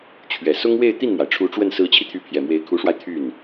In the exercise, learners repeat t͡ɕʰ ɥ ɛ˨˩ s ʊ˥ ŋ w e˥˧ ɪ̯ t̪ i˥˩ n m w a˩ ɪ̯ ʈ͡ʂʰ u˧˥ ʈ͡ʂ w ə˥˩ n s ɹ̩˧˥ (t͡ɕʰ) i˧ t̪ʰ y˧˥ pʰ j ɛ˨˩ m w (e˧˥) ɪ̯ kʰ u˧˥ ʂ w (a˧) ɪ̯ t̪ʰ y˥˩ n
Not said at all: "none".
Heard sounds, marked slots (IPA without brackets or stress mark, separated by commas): t͡ɕʰ, e˧˥, a˧